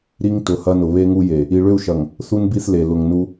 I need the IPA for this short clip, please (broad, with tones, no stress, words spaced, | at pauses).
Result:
ɾi˦ŋtʊ˨hɐ˦nʊ˨ βe˦ŋu˦je˨ | i˨ɭʏ˦˨u̯ʃɐ˨ŋ | θu˦nbi˦˨θle˨ lʊ˨ŋnu˦